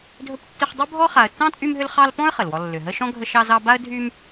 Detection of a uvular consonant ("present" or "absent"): present